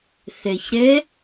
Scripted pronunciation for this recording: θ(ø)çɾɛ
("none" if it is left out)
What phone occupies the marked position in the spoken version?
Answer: ɛ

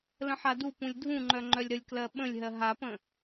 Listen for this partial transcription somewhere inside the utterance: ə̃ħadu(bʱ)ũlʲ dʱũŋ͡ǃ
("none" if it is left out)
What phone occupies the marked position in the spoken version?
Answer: p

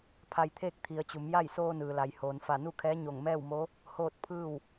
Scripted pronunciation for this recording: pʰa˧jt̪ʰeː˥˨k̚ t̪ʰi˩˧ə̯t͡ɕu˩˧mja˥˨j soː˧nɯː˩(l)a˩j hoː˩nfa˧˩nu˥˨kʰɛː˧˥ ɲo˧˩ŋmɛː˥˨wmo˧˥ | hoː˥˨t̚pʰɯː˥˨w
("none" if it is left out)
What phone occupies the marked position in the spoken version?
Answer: l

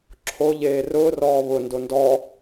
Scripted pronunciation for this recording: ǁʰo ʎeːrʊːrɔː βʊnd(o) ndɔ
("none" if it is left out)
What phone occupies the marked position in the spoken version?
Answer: o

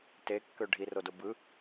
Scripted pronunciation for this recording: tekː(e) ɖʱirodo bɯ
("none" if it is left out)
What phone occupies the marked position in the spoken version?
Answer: ø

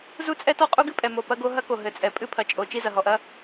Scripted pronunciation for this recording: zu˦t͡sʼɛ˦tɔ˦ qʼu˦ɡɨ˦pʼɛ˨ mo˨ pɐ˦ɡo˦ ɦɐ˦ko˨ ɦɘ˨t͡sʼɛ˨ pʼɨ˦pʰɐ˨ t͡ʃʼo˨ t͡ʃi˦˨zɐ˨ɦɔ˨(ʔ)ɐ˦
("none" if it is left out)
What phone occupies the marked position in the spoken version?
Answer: ʔ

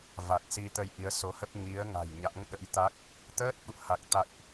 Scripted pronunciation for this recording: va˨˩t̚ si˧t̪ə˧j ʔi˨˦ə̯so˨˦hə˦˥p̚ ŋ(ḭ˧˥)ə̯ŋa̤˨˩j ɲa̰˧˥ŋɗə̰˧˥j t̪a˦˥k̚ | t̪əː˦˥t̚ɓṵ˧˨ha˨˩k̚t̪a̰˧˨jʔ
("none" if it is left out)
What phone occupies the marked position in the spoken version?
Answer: i˨˦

